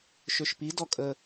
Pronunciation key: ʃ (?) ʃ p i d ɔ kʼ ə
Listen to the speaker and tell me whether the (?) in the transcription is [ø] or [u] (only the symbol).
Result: ø